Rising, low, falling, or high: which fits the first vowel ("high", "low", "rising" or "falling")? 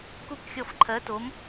falling